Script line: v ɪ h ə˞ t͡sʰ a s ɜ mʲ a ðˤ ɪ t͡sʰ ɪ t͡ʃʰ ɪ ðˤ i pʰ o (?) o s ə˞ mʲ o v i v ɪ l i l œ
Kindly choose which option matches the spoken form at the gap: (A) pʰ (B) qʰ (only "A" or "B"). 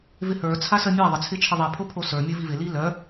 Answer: A